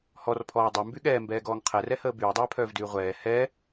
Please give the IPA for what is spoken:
h ɔ r pʰ ɔː dˤ y m b y ɠ ɛː m b ɛː ɡ ɔː ŋ qʰ ɛ r ɛ h əː b yː dˤ ɛː pʰ œː v d yː ʁʷ ɛː h ɛ

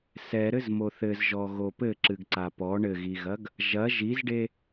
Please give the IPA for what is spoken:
s ɛ ɾ ɘ z m o θ ɘ z ʒ ɔ ɣ o p ɘ ǁ ɨ ɡ ǀ a p ɔ ɳ ɘ ɣ i ɣ ɐ ɡ | ʒ ɐ ʒ i z ɖ e

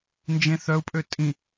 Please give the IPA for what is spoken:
n d͡ʒ ẽ θ œ u̯ pʼ ø tʼ ĩ

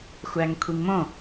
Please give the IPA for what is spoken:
xʷ æ ŋ kʷʰ i ŋ m õ

